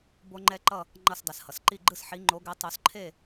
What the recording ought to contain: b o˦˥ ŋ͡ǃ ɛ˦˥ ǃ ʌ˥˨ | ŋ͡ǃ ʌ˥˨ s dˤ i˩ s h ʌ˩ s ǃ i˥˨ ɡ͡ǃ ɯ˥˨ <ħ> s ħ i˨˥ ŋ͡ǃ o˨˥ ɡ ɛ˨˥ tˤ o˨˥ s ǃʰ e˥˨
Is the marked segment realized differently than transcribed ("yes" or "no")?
yes